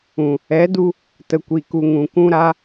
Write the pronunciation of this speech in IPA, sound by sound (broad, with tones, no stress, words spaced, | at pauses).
ũ˨ | ɛ˨˦du˧ | tə˨kʷi˨ku˨ ŋũ˨ kũ˧ɾa˧